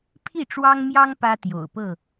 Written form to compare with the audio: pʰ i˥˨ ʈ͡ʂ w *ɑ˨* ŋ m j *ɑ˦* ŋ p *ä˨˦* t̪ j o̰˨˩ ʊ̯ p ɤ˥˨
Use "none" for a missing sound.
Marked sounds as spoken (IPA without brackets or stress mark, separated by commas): ɑ˦, ɑ˦, ä˦